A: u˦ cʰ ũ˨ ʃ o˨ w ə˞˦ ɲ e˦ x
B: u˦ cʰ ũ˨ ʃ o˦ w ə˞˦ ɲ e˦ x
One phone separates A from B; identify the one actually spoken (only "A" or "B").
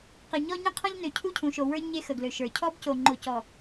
A